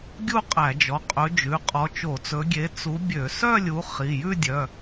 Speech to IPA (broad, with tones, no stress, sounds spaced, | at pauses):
ɡʲ u˥˧ qʼ æ˧˩˧ d͡ʒ ɔ˩˧˩ qʼ ɵ˨˦ d͡ʒ ʉ˩˧˩ qʼ ɔ˨˦ t͡ʃ o˧˩˧ t͡s ɵ˨˦ ɡʲ e˨˦ t͡s u˨˦ bʲ ø˧˩˧ s œ˥˧ lʲ u˨˦ χ i˩˧˩ j ʉ˥˧ dʲ œ˩˧˩